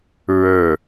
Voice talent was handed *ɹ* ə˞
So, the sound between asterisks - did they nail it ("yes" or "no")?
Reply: yes